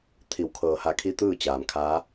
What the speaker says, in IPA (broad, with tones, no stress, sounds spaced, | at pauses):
t̪ʰ i˩˧ w kʰ ɤː˩ h a˧˩ kʰ i˧ t̪ ɯː˥˨ t͡ɕ aː˩ m kʰ aː˧˥